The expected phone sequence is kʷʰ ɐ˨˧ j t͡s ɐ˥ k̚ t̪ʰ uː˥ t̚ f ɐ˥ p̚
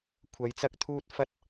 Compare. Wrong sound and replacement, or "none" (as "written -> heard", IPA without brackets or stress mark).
p̚ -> t̚